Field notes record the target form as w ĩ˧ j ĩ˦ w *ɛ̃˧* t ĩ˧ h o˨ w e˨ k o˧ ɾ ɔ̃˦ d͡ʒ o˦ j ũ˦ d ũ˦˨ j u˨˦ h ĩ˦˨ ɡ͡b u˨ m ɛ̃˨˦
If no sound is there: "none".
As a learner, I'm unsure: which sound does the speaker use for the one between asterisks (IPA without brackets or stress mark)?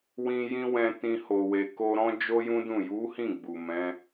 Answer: ɛ̃˧